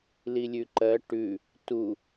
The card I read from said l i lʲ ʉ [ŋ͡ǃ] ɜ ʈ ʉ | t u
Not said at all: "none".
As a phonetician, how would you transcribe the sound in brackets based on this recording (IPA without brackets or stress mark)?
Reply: ǃ